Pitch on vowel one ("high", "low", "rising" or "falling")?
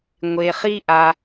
low